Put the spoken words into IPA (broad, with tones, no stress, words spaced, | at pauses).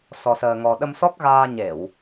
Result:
sɔ˧səː˧ŋɔ˧ ɗə˧msɔ˦˥k̚ɣaː˧ɲe˧˩˨w